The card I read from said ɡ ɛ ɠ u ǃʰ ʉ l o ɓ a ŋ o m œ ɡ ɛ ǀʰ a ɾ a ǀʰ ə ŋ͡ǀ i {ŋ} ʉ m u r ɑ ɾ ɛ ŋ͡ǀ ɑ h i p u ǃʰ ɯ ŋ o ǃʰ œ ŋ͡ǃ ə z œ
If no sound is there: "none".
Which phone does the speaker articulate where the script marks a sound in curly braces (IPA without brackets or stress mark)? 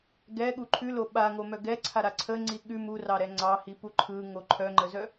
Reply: ɠ